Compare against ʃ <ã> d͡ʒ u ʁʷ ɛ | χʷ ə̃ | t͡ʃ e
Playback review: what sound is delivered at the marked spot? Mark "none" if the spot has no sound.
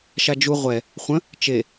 a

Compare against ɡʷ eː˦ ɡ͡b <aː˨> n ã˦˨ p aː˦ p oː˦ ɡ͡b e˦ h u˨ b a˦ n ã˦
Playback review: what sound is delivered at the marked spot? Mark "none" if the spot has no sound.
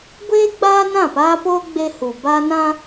aː˦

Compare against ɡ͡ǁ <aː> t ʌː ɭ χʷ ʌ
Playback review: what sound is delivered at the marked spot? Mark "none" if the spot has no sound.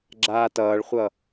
aː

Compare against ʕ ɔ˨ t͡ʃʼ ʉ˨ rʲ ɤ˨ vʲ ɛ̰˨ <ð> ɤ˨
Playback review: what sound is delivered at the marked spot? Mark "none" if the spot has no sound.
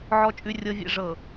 ʐ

